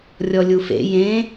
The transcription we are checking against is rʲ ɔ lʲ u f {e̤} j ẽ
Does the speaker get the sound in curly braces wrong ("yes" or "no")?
yes